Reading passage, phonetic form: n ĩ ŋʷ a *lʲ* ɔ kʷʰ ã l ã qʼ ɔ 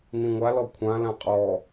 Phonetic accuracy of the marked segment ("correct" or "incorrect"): incorrect